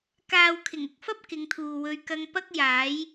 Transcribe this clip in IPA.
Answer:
k aː˨ w kʰ ɪ˨˩ ŋ ʊ˨ k̚ f ɐ˥ p̚ k ɪ˨˧ ŋ t̪ʰ uː˨ w ɵ˧ ɥ k ɐ˧ ŋ p ɐ˥ k̚ j aː˨˥ j

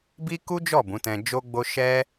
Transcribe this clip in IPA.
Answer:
b i˦ k u˦ d͡ʒ ɔ˦˨ b ũ˨˦ t ɛ̃˧ d͡ʒ o˧ ɡ͡b o˧ ʃ ɛ˦

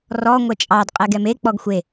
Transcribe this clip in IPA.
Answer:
r ɔ ŋʷ ɛ t͡ʃʼ ɑ d qʼ ɛ ɡ ɛ m e k͡p ɔ ɡ xʷ e

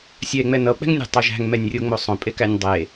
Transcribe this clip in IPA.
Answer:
sʲ ɛ e̯ ŋ͡m ɛ n ʌ o̯ k͡p ɛ̤ ŋ nʲ æ̤ tˤ o ʒ æ̤ ŋ m ɛ nʲ rʲ o ŋ͡m o sˤ õ pʼ e k æ nʲ dˤ e

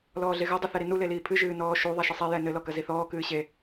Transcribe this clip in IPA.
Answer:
l ɔː ɮ e ɣ ɘ dˤ ɨ θ ɛ ɾ i n u l e l iː pʰ ɨ ʒ ɨː n ɔː ʃ u ðˤ a ʃ ɨ sˤ i j ɛ n ɘ l ɔ k ɐ z i θ ɔː k ɨː ɕ e

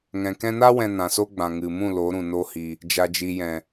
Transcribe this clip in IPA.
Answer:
ŋ ɛ̃˨ k ɛ̃˧ n a˦ w ɛ̃˧ n ã˨ s o˦ ɡ͡b ã˨ ŋ ɨ˨ m ũ˦˨ l o˨˦ ɾ ũ˨ n o˦ h i˧ | d͡ʒ a˨ d͡ʒ i˨ j ɛ̃˨

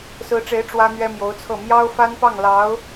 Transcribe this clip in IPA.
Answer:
s ɹ̩˧˥ ʈ͡ʂ e˧˥ ɪ̯ ʈ͡ʂ w ä˥ n̪ ɥ ɛ˥ m j o˧˥ ʊ̯ t͡sʰ ɤ˥˩ m j ɑ˥ ʊ̯ f a˥ n p ɑ˥˩ ŋ l ɑ˧˥ ʊ̯

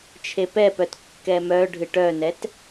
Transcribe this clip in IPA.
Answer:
t͡ʃʰ e p ɛ p œ t kː ɛ m œ ɖʱ ɨ ʈ œ n ɛ t

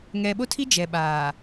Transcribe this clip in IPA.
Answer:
ŋ ɛ˨ ɓ o˦ tʰ i˦ d͡ʒ ɛ˨ ɓ aː˨

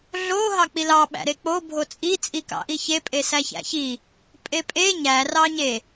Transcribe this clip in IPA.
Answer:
ɮ o ɦ ɑ k͡p i l ɑ ɓ æ̰ ɾ e k͡p o bʱ o t͡sʼ i t͡sʼ i k ɑ̰ ʔ i ç e pʼ e s æ ç æ̰ ç i | pʼ e pʼ e ɲ æ r ɑ ɲ e

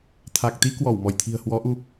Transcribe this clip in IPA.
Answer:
t̪ʰ a˨˩ k̚ t̪ i˧ k w ɔ˧˩ w m ɔ˧˩ j t̪ʰ i̤˨˩ ə̯ h w ɔ˨˦ ʔ u˧

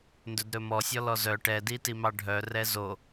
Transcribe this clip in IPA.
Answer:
n d ɵ d ɾ ɵ m ɔ sʲ ɔ l ɔ z œ ʈ ɛ d i t i m ɑ ɖʱ œ r ɛ z o

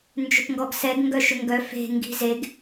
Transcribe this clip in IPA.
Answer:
n d͡ʒ ʏ p ŋ ɡ ɔ ɡ s ɛ ɡ ŋ ɡ œ ʃ ʏ ŋ ɡ œ f e̤ ŋ ɡ i̤ z e ɡ

